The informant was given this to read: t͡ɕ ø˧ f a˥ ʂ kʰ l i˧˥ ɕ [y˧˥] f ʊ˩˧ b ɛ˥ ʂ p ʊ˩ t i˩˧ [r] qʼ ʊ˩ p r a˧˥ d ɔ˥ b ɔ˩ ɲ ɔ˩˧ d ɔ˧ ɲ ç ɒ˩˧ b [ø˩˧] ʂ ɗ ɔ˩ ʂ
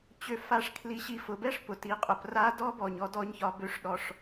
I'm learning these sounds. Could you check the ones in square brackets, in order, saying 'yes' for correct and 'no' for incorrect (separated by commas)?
no, no, yes